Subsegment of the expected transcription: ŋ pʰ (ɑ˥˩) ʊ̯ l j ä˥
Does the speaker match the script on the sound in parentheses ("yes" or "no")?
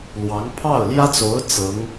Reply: yes